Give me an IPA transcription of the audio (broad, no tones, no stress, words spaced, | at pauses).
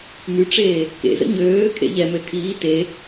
myʈ͡ʂeː | kḛzə̰ ɲøː kʰḛʎɛmø tʰiː te